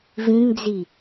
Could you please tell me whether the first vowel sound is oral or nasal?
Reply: nasal